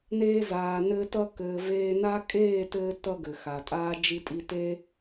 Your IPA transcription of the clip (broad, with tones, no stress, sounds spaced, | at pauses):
n eː˧ z aː˨ n ɘː˧ t ʌ˧ k ɘː˨ v eː˧ n a˦ kʼ eː˦˨ t ɘː˧ t ʌ˧ ɡ ɘ˨ x a˨ tʼ aː˦ d͡ʒ i˧ tʼ i˧ t e˦